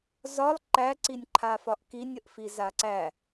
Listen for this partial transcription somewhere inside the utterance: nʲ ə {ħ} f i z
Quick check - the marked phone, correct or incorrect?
incorrect